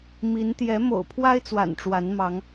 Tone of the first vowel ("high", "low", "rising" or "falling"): rising